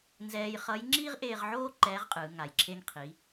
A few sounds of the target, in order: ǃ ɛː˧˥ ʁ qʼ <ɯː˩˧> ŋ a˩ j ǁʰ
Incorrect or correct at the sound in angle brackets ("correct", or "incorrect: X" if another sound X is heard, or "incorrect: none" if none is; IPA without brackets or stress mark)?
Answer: correct